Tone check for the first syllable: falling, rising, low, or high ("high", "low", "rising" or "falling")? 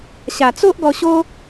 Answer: low